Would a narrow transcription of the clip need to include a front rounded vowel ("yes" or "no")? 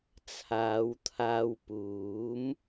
no